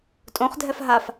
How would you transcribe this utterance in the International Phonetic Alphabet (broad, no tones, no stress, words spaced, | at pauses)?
tʼõχdʱɛf ɦaf